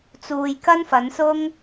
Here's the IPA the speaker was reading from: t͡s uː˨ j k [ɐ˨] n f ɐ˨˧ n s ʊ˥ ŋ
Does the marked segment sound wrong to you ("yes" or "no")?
yes